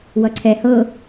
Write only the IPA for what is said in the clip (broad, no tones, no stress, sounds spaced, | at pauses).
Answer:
w ʌ ǀʰ ɛ h ɤ